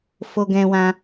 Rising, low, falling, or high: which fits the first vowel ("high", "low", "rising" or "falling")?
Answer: high